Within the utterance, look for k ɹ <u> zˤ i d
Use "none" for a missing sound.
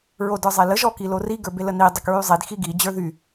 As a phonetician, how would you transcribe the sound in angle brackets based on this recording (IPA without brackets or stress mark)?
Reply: y